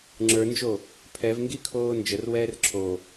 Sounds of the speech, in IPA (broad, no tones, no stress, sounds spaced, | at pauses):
ŋ͡ǁ ə˞ n d͡ʒ o | pʰ ɛ v ŋ ɡ i kʰ oː n d͡ʒ ə r w ɛː r ǁʰ o